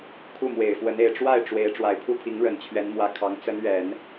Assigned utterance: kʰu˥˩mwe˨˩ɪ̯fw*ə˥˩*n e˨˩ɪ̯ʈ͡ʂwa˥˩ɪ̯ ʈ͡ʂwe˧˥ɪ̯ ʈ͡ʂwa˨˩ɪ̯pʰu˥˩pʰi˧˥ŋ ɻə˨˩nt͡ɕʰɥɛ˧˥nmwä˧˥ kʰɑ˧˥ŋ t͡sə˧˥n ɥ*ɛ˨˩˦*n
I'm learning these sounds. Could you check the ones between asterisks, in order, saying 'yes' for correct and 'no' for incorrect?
no, yes

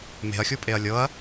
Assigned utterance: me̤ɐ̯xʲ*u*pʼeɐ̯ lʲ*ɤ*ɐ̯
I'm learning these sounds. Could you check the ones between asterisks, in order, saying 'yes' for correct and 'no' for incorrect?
yes, yes

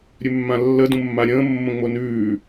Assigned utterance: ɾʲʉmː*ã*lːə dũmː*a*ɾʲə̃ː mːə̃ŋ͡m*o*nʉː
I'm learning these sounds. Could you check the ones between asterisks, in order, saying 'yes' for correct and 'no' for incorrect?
yes, yes, yes

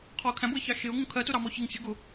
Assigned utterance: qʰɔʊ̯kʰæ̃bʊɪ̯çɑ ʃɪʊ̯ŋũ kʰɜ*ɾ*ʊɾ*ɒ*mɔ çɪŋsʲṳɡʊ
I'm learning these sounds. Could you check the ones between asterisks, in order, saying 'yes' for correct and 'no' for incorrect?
no, no

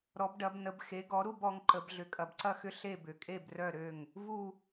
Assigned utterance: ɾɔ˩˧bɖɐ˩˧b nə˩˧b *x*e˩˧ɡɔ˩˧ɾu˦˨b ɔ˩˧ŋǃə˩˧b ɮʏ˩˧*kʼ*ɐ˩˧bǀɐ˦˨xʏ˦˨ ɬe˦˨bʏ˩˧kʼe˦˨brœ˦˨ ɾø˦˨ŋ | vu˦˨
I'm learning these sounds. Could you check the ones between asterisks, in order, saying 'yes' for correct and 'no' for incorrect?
yes, yes

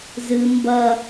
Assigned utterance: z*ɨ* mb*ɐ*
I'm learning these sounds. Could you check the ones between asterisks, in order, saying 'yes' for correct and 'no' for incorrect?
yes, yes

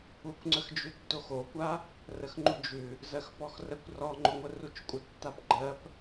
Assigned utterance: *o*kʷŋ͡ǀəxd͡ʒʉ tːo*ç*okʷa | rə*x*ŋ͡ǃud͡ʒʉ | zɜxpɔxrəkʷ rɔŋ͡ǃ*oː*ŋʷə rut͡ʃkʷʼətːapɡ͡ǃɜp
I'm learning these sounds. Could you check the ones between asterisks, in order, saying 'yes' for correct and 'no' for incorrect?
no, no, yes, no

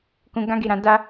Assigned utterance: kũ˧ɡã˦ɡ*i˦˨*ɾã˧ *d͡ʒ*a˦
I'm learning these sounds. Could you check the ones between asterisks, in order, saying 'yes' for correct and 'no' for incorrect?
no, no

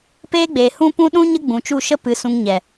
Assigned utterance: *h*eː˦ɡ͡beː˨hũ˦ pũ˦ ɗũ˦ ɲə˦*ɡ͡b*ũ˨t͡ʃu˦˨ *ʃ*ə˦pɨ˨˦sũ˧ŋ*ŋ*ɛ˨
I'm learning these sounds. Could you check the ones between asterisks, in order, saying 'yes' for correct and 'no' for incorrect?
no, yes, yes, no

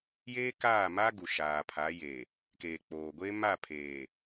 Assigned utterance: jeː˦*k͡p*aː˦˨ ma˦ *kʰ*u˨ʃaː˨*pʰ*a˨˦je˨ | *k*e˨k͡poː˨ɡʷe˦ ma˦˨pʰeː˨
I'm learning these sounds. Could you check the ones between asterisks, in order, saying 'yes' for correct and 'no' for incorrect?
no, no, yes, yes

